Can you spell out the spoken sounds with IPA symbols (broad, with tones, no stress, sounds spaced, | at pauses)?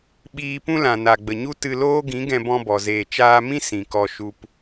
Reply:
ɓ iː˧ p ũ˦ l ã˨ n a˨ ɡ͡b ə˨ ɲ u˦ t ɨ˧ l oː˦ ɡ ĩ˨˦ ɡ ɛ̃˧ b ɔ̃˧ b ɔ˨ z eː˨ t͡ʃ aː˧ m ĩ˦ s ĩ˨ k ɔ˧ ʃ u˧ p